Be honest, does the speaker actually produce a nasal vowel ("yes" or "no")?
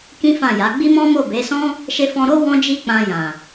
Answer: yes